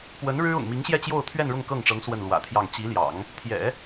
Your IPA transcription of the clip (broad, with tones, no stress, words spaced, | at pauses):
pwə˧˥n ɻɻ̩˥ʊ̰˨˩ŋmi˧˥ŋɕjɛ˥˧ t͡ɕjo˥˧ʊ̯t̪ʰɥɛ˥˧n ɻʊ˥˧ŋkɤ˥˩ŋʈ͡ʂɤ˧˥ŋ swə˥˩nlwä̰˨˩t̪ʰjɑ˥˩ŋ t͡ɕi˧˥ljɑ̰˨˩˦ŋ | t̪ʰjɛ̰˨˩˦